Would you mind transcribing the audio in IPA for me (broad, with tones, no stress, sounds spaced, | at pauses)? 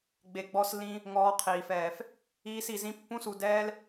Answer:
ɡ͡b e˨ ɡ͡b ɔ˧ s l ĩ˧ | ŋ ɔː˧ qʰ iː˨ f ɛː˨ f | iː˧ s i˨ z ĩ˧ pː ũ˧ s u˨ d ɛː˧ l